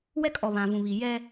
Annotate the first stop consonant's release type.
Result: ejective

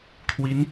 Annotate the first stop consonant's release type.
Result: aspirated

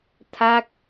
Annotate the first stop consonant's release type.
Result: aspirated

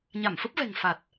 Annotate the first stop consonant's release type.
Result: plain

